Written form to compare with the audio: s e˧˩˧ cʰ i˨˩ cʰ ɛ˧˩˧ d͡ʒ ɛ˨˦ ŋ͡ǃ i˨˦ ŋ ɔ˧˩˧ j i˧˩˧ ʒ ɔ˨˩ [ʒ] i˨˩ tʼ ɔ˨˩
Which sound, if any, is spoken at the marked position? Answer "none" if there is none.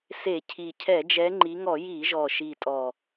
ʃ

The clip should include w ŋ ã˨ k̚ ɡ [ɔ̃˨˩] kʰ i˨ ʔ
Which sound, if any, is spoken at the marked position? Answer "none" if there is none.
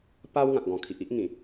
ɔ̃˨˩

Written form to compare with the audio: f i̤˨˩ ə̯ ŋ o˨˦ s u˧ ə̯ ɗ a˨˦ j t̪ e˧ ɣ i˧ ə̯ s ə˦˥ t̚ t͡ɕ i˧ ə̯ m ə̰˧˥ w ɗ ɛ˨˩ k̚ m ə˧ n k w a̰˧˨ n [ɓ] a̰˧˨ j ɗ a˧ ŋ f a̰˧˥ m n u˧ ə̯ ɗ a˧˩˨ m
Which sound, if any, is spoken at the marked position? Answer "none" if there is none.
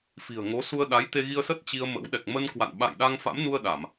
ɓ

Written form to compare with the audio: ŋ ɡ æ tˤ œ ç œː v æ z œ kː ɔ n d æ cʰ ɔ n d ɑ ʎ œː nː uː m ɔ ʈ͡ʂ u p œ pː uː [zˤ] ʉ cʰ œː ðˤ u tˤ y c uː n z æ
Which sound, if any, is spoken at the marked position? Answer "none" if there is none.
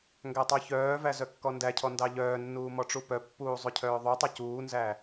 zˤ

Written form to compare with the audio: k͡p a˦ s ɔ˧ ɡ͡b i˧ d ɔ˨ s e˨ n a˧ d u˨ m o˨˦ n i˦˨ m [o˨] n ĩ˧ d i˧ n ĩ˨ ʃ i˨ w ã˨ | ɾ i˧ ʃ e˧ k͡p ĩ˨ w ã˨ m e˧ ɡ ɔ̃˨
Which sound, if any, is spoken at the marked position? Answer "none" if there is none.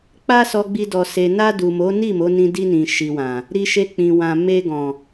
o˨˦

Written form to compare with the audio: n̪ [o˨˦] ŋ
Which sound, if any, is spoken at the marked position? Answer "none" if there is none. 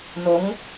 o˨˦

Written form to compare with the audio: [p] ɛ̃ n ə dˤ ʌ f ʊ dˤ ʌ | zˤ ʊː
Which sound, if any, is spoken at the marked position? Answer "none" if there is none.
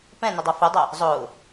p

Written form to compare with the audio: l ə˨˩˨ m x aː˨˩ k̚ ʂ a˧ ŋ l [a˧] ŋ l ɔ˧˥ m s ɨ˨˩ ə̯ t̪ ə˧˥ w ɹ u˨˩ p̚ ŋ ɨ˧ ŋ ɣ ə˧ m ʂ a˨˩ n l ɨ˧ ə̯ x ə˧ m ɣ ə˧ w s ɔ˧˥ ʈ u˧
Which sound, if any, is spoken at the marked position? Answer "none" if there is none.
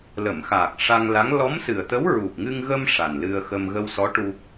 a˧˥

